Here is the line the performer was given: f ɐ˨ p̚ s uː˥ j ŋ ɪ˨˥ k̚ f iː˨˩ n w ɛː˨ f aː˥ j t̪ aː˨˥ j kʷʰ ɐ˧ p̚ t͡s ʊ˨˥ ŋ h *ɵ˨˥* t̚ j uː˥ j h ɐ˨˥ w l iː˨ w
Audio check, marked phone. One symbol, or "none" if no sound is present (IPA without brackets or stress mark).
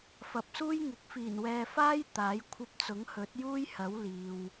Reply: ɵ˨˥